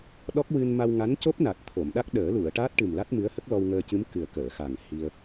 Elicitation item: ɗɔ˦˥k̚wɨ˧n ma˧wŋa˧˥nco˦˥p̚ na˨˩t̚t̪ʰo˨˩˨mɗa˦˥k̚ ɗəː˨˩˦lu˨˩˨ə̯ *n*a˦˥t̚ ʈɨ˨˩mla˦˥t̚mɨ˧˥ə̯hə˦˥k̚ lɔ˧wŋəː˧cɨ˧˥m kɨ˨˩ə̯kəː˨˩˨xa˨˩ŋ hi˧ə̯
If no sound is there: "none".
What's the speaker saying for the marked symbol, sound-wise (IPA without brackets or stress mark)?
ʈ